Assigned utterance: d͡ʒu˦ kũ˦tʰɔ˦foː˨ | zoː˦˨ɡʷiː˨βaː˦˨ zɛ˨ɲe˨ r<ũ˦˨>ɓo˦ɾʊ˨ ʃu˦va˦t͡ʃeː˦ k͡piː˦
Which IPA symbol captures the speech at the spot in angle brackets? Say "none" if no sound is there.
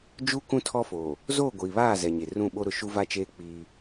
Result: ũ˦˨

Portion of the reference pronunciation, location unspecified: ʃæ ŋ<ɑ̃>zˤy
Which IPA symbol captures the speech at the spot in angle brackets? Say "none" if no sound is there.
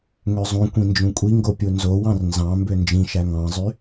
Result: ɑ̃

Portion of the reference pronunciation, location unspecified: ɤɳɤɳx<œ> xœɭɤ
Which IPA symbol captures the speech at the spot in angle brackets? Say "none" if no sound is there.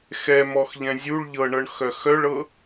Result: œ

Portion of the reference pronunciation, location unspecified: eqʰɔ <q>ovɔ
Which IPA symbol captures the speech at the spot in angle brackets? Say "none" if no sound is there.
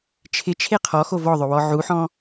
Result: x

